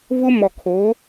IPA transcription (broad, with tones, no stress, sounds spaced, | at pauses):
v ʊ˦ m ɔ˨ kʰ o˨˦